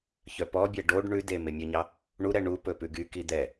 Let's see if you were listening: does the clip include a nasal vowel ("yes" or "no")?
no